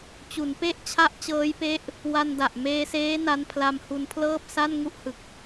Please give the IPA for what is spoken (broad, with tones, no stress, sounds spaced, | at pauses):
t͡ɕ u˩˦ n p e˥˩ ʔ t͡ɕʰ a˥˩ ʔ t͡ɕ ɤː˦˥ j p e˦˥ ʔ | w a˧ n d a˨˩ ʔ m eː˧ s eː˦˥ n a˦˥ n pʰ l a˧ m h u˧ n pʰ l ɤː˥˩ p̚ s a˥˩ n ŋ u˥˩ ʔ h ɯ˨˩ k̚